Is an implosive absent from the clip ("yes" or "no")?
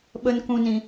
no